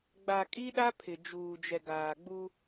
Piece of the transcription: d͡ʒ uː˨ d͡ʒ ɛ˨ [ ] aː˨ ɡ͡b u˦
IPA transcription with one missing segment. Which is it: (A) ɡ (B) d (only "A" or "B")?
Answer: A